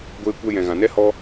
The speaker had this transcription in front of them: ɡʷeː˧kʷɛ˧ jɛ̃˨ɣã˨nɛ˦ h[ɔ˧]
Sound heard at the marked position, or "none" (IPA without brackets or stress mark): ɔ˧